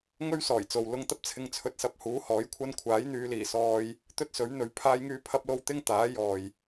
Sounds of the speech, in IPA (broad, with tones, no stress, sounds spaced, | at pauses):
ŋ ɵ˥ ɥ s ɔː˨˩ j t͡s o˨ w l ʊ˧ ŋ t̪ ɐ˥ p̚ t͡sʰ ɪ˧ ŋ t͡sʰ ɵ˧ t̚ s ɐ˧ p̚ h uː˨˥ h ɔː˨˥ j kʷʰ ɐ˥ n kʷʰ aː˨˥ j n̪ yː˨˧ l iː˨˩ s ɔː˧ j | t̪ ɵ˥ t̚ s ɵ˨˥ ɥ n̪ ɵ˨˥ ɥ pʰ aː˥ j ŋ yː˥ pʰ ɐ˥ p̚ l o˥ w t̪ ɪ˥ ŋ t̪ aː˨˥ j ɔː˨ j